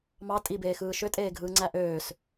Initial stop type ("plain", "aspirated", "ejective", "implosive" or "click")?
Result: ejective